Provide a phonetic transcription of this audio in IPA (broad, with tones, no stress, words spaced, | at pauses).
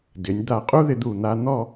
dɪ˩˧nʲ d̪a˧˩qʼu˥ðɪ˧d̪u˧˩ n̪a˧n̪ɔ˥˧